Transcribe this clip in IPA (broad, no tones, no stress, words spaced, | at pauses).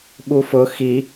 ɓufʊ xi